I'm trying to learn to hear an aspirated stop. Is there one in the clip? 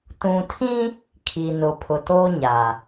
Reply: yes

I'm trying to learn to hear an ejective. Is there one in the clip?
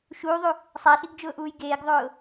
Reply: no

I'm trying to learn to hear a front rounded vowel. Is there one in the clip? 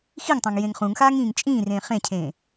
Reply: no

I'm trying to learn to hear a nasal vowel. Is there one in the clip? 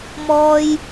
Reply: no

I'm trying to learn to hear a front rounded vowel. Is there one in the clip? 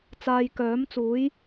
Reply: yes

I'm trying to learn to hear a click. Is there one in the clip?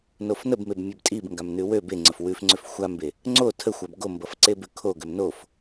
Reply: yes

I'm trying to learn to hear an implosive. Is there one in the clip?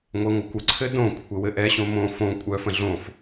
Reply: no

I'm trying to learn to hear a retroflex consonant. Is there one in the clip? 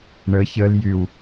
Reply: yes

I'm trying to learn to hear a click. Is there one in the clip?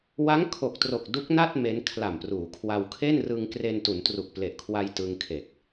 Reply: no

